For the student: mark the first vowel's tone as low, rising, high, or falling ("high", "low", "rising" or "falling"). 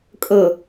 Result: low